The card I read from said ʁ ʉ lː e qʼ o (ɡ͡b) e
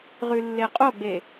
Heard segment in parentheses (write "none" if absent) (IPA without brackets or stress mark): ɡ͡b